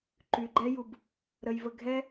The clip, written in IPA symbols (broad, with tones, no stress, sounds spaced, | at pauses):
ǃ y˧ ɡ͡ǃ ɛ˦ j u˧ b | ɾ ə˧ j v ə˧ ɡʱ ɛ˦